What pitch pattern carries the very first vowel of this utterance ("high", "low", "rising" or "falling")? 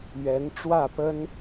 rising